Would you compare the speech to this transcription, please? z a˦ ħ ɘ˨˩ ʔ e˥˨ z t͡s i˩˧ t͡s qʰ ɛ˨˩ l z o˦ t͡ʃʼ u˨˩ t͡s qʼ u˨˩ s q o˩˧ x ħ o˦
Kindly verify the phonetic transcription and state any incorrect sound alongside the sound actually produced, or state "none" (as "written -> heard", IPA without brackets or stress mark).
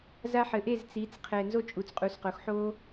l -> n